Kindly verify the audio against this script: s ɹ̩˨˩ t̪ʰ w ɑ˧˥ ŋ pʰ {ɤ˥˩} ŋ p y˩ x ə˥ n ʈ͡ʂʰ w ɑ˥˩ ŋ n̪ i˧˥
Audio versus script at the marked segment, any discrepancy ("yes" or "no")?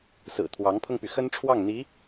yes